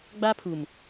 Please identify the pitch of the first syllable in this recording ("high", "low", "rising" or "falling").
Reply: high